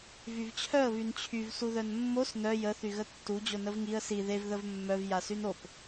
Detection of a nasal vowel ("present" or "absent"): absent